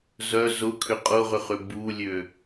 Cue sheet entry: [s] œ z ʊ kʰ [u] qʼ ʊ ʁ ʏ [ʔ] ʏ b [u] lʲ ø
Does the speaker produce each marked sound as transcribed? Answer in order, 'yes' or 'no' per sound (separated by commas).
no, no, no, yes